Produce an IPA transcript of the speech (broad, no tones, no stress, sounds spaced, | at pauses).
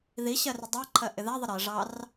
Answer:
ð i ɕ ɜ r ɪ dˤ ɑ ǃʰ ɜ ʔ ɪ ð æ ðˤ ə ɾ ɜ ʐ ɑ r